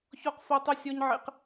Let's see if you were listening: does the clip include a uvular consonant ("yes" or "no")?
yes